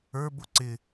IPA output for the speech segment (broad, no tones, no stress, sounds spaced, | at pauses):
ə˞ b ʊ ǀ ɪ